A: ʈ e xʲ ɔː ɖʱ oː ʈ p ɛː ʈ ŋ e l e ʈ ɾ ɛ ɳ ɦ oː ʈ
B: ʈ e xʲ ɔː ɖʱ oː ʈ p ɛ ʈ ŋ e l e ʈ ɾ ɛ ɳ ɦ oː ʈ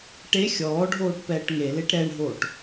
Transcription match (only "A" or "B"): A